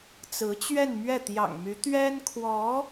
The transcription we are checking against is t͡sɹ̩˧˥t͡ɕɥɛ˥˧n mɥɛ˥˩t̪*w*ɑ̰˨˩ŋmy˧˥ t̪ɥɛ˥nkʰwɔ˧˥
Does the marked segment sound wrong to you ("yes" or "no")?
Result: yes